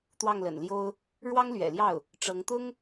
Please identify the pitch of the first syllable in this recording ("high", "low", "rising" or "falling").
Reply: falling